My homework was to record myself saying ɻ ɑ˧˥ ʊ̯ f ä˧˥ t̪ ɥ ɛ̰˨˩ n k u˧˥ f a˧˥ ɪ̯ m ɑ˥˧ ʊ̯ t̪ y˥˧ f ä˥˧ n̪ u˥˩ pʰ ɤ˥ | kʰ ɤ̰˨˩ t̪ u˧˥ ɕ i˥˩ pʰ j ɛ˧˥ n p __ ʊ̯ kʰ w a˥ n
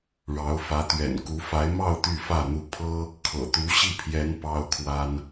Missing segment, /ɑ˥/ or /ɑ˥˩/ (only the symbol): ɑ˥